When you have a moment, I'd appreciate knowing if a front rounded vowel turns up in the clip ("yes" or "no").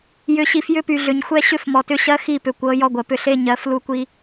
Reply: yes